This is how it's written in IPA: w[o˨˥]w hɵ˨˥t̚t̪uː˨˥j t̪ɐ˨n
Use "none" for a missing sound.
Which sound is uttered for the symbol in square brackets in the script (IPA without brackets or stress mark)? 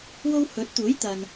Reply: o˥